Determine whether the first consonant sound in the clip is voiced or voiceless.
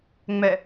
voiced